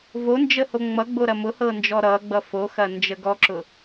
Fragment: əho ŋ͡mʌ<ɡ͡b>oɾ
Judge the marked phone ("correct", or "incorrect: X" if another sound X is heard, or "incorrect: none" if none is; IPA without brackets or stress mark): correct